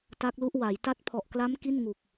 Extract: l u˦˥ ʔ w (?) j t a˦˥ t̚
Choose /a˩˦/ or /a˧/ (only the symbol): a˩˦